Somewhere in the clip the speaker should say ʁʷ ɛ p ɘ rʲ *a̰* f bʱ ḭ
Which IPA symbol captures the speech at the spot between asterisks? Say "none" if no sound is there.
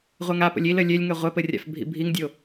a̰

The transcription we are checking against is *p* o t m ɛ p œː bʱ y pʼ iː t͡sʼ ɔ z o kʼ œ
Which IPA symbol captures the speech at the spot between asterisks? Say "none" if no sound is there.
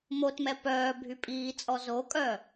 m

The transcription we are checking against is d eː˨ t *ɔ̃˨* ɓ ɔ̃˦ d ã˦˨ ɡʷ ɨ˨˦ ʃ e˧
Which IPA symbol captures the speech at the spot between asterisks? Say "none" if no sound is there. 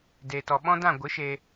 ɔ˨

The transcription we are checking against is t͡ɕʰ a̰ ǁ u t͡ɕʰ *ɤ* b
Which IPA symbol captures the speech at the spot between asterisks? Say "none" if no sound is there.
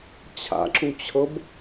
ɤ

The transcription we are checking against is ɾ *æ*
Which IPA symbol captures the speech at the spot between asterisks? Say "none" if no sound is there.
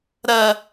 ɐ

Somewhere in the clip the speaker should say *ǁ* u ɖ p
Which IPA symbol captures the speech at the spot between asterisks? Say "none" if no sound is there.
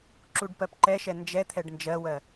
ǁ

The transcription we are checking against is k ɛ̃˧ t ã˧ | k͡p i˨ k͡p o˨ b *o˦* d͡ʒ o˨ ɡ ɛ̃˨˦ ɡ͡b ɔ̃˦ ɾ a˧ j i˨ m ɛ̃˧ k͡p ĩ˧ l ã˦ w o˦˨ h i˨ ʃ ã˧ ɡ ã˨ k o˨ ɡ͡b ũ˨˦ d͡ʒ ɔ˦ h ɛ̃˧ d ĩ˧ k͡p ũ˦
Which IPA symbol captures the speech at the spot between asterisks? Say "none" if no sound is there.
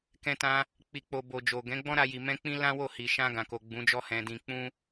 o˨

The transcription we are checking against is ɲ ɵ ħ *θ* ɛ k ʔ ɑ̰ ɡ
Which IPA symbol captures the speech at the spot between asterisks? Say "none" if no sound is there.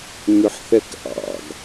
θ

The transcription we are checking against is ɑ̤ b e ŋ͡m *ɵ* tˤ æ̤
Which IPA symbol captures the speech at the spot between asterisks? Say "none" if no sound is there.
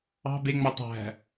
ɔ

